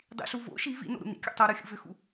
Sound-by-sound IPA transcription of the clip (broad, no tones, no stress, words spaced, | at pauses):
dˤḭɬu vo̰ ʃi vḭno̰ ɾṵnḭkʲo̰ tˤoɾoxʲṵ vʏxṵ